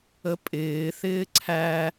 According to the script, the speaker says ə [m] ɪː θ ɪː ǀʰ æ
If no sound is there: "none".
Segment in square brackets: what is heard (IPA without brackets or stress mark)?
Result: pʼ